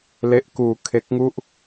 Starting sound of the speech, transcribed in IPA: l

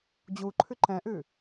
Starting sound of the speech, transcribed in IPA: d͡ʑ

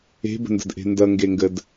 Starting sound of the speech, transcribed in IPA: e̤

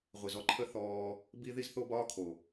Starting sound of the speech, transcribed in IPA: ʁʷ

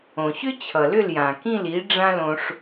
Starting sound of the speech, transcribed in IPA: õ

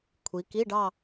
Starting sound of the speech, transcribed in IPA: kʷʰ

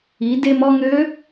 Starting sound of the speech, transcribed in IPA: i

